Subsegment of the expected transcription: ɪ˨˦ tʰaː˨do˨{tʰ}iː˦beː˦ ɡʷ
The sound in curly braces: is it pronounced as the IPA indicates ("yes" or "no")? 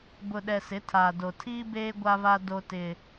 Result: yes